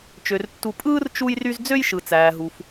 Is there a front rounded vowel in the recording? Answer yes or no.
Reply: yes